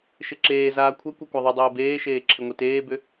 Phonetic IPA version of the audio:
ʃ ɪ ǁ eː z aː kʷʰ ɛ kʷ ɛ kʷ a ðˤ ʏ dˤ eː b eː ʃ eː ǁʰ ɪ ŋʷ i t eː b ʏ

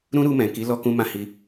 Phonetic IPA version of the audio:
ɾ ũ˦ ɾ u˧ m ɛ̃˨ k i˨˦ l ɔ˧ k ũ˧ m ã˧ h i˧

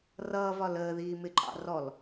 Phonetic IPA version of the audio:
r ʌː v ɒ l əː ð iː m ɪ ǃʼ ɑ̰ r ɔ l

